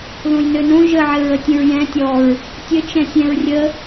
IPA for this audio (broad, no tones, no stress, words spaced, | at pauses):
ðõjnønõ ʒəʕɘɹətʲə̃ɹ jɛ̃ tʲɔɹ | tʲɘt͡ʃɛ̃ sʲɛ̃ɹrʲə